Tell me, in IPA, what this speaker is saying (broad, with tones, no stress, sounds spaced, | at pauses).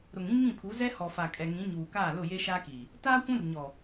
ɾ ʊ˨ ŋ ĩ˦ ŋ ĩ˦˨ pʰ u˨˦ z ɛ˦ h ɔ˨ f a˨ kʼ ɛ˨ ŋ ĩ˨˦ ɲ uː˨ k aː˦˨ l ʊ˦˨ j e˦ ʃ a˦ k iː˨ | t aː˦ kʷ ũ˦ r ɲ ɔ˨